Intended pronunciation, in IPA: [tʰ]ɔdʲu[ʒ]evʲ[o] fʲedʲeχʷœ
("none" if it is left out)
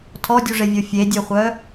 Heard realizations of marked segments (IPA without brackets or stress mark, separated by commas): tʰ, ʐ, o